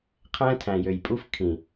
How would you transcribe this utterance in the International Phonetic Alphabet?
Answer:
qʰ æ̃˦ tʰ æ̃˨ j ø˨ j pʼ u˦ f kʰ ĩ˨

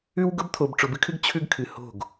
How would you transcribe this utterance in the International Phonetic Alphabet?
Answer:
ʉ˦ w ɡ ʊ˦ b t̪ʰ o˨ b ʈ͡ʂ ʊ˨ b ɨ˦ kʰ ɨ˦ ɡ t͡ɕʰ ʉ˦ ɡ kʰ ɨ˨ h o̤˦˨ ɡ

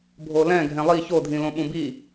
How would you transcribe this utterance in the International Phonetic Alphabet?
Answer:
bʱ o l ɛ̃ ɡʱ ɛ̃ lˠ i ç o dʱ ĩ l õ ɓ ũ b i

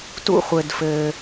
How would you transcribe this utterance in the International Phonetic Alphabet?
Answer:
t ṵ˥ χʷ ɘ˧ d f ɘː˧

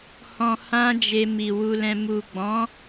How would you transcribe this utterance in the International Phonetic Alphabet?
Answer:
h ɔ̃˧ h ã˦ d͡ʒ e˧ m i˨ w u˧ l ɛ̃˧ m u˨ ɡ͡b ɔ̃˨˦

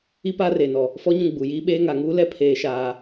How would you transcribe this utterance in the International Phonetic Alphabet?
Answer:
i˦ p aː˦ r eː˨ n ɔ˨ | f ɔ˦ ɲ ũ˦˨ ɡ͡b u˨ j iː˦ ɓ eː˦ ŋ a˨ ŋ uː˦ l ɛ˦ pʰ eː˦ ʃ aː˦

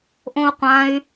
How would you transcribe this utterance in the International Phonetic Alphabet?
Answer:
ʔ õ u̯ qʷ ã y̯

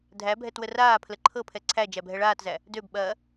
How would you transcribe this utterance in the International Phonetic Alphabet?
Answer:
dʱ æ bʱ ɛ t w ə r aː pʰ l ə ǃʰ ɤ pʰ ɛ ǀʰ æ d͡ʒ æ bʱ ɛ ɭ aː t z æ | d ø b ɓ ɐː

